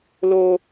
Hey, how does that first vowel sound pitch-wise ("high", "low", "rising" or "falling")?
high